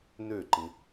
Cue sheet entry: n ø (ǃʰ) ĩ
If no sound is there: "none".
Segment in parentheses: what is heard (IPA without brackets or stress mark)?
ǃ